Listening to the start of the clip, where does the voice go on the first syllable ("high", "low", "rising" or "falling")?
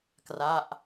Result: falling